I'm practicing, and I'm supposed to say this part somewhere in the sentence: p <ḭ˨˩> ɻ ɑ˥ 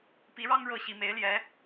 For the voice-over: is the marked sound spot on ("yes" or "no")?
no